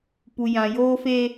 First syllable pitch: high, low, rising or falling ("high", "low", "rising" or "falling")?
low